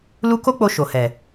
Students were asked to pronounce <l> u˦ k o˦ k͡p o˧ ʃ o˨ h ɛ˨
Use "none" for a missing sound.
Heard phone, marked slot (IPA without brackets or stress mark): l